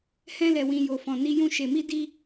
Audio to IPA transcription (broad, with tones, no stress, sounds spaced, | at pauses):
h ɛ̃˧ l ɛ˨ w ĩ˨ j o˨ f ɔ̃˨ n i˧ j ũ˧ ʃ e˨ m i˧ d i˦